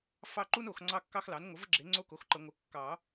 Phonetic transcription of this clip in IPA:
fɑ˦˨ǃu˦n o˨˩˦x ŋ͡ǀɑ˦kːɑ˦xlɑ˩˥n ŋʷə˩˥və˦ɡ͡ǁe˩˥ ŋ͡ǀo˦ko˩˥xǃə˨˩˦ ŋʷə˩˥ kːɑ˨˩˦

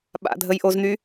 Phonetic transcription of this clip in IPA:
ɓa̰dʱəjʔozn̪y

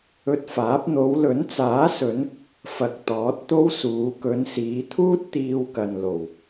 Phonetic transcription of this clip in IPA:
ɵ˧t̚faː˨˥p̚ n̪o˨˧wlɵ˨˥nt͡saː˨˥sɵ˨˧n | fɐ˨k̚ t̪ɔː˨˥t̚t̪o˥wsuː˨˧ kɵ˨˧nsiː˨˧t̪ʰuː˥t̚ t̪iː˧wkɐ˨nlo˨˩w

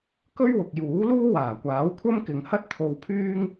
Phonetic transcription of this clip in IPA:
kɵ˥ɥwʊ˨k̚juː˨˥ luː˥waː˨˩kʷaː˨˥w kʷʰɐ˥mkɪ˨ŋ hɐ˥t̚t̪ʰo˧wpʰyː˥ŋ

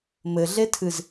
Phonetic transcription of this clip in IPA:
mɘɮetʰɨz

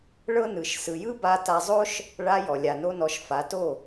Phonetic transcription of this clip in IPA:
ɭɤ˦nɯ˨ʃ sɯ˨jɯ˦ba˧ ta˧zˤo˦ʃ | ɭa˧ jɔ˨lʲa˨no˦nɔ˧ʃ fa˨˦to˦˨

